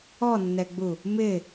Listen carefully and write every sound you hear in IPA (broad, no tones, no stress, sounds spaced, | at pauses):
ɔ nː ɛ ɡ͡b u | m ɪ